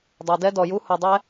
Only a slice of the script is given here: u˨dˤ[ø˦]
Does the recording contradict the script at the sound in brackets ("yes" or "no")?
yes